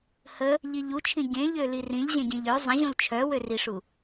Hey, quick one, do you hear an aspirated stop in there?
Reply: yes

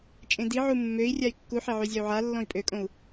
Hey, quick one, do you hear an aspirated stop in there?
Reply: no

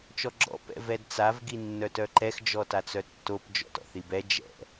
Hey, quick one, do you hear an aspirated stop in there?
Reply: no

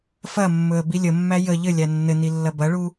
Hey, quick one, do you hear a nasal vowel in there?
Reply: no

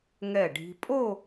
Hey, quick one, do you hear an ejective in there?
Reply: yes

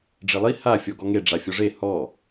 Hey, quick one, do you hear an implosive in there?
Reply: no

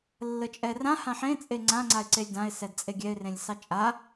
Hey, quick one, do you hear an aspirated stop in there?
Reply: no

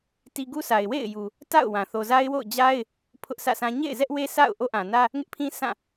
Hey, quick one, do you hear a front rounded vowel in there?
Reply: no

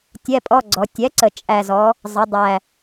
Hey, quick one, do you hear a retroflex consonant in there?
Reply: no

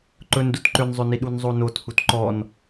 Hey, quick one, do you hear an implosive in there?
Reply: yes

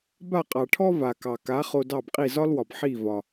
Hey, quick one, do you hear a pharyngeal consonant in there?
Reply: yes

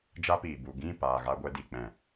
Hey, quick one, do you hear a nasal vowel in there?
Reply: yes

